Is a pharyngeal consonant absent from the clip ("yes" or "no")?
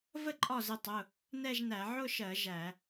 no